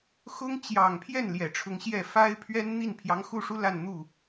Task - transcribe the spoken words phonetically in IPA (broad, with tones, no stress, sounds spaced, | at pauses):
x ʊ˥ ŋ t͡ɕ j ɑ˨˩ ŋ pʰ j ɛ˥˩ n l j ɛ˨˩ ʈ͡ʂʰ ʊ˧˥ ŋ ɕ j ɛ˥˩ f a˥ ɪ̯ pʰ ɥ ɛ˥ n n̪ i˥˩ n pʰ j ɑ˧˥ ŋ x u˥˩ ʂ u˥ l a˥˧ n n̪ u˥˩